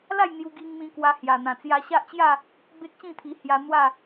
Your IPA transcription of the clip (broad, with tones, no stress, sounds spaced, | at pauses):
l a˥˧ j n̪ j u˧ ɡ i˧ ŋ m ĩ˧ k w a˧ h j a˨˩ n̪ ã˨˩ t͡s j a˧ ɕ a˦ ʔ t͡ɕ j a˥˧ | b e˦ k̚ ɕ ĩ˥˧ t̪ʰ i˧ h j a˧ n̪ w a˥˧